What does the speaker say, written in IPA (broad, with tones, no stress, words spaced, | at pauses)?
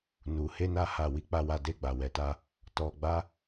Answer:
nu˧he˦na˦ha˦˨ wi˧k͡pa˧wa˧de˧ ɡ͡ba˧wɛ˧ta˦ | tɔ˧ɡ͡ba˦